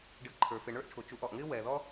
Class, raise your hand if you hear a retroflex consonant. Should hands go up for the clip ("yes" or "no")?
yes